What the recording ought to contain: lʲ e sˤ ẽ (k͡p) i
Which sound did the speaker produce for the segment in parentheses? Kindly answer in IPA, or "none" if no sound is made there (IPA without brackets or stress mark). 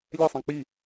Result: k͡p